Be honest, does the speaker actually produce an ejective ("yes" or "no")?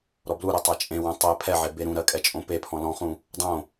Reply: yes